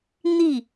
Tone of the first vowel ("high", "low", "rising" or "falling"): falling